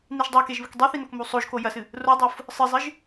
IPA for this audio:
n i ʒ dˤ a k e ʒ β ɨ k dˤ i θ i n o k m u sˤ o ʒ k o j ɐ s ɨ | r o dˤ o f | sˤ ɨ zˤ ɨ ʒ

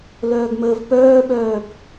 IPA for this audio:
l œː ɡ m əː v p œː ɓ œː b

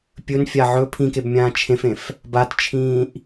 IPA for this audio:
pʲ ɵ n fʲ a ʕ ɵ pʰ ĩ k e b mʲ ãː t͡ʃʰ ẽ f ẽ f | b a t t͡ʃʰ ĩː ʔ

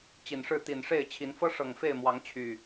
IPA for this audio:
t͡ɕ i˨˩ n ʂ ɻ̩˥˨ t̪ i˨˩ n ʂ e˥˨ ɪ̯ t͡ɕʰ i˨˦ n f ɤ˦ ʂ ɤ˨˩ ŋ f e˥˨ ɪ̯ m w ɑ˨˦ ŋ t͡ɕʰ y˨˩

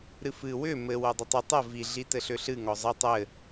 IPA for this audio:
ɾ ɨ f ɨ w ʏ m ɘ w o dˤ ɘ tˤ ɘ tˤ ə v i ɮ i t ɘ ɬ ʏ ɬ ɨ ŋ ɔ zˤ ɘ tˤ ɘ

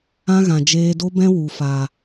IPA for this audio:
ã˦ ɣ ã˨ d͡ʒ eː˧ d o˦ b ɛ̃˦ w u˨ f aː˨

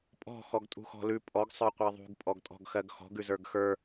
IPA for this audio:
pʼ ɔ̤ x ɔ ɡ tʼ ṳ x ɔ̤ l ʉ pʼ ɔ ɡ sˤ ə˞ qʷ e ðˤ ṳ ɡ pʼ ɔ ɡ tʼ ɔ̤ ɡ x ɜ ɡ x ɔ̤ ɡ ʉ z ə˞ ɡ x ə˞

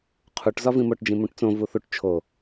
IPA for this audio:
qʰ u ʈ z ɒ v ĩ m o ʈ d͡ʒ ĩ m ũ ʈ t͡s õ v u θ u ʈ t͡ʃʰ o

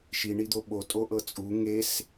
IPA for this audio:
ʃ i ɳ i d̪ o ɓ o tʼ o ʔ ɤ t͡sʼ u ŋ e s

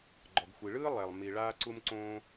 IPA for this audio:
ɡ͡ǃ ɔ˩ ɡ xʷ i˩ ɭ ɯː˥ lˠ ɛ˩ lˠ m i˩ ɭ aː˥ ǀ u˥ m ǀ õː˥

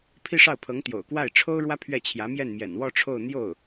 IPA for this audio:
pʰ i˥˧ ʂ ɑ˥˩ ʊ̯ pʰ ɤ˧˥ ŋ t̪ j o̰˨˩ ʊ̯ k w a˥˩ ɪ̯ ʈ͡ʂʰ o˥ ʊ̯ ɻ w ä˥ pʰ ɥ ɛ˥˩ t͡ɕʰ j ä˧˥ m j ɛ˥˩ n m j ɛ̰˨˩ n w ɔ˥˧ ʈ͡ʂʰ o˥˧ ʊ̯ n̪ j o˥˩ ʊ̯

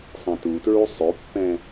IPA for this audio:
sˤ ã t u t ɹ u sˤ o pː ɛ̃

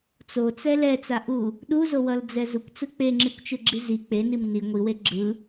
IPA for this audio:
t͡s o t͡s ɛ l ɛ t͡s a ʔ u | ɗ u z o w ʌ l d͡z ɛ z u kʷ t͡s ɯ k͡p e ŋ͡ǁ i kʷ t͡ʃ ɯ ɡ͡ǁ i z i k͡p e n i m n i ŋʷ i w e ɡ͡ǁ ɯ

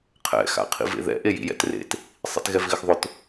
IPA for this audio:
qʰ ɛ̰ x a̰ qʰ ḭ v ḛ ð ɛ̰ ʔ e j ḭ j ɛ̰ t r ḛ t | sˤ ḭ t ɣ ɛ v ɣ ɪ x ðˤ ʊ t

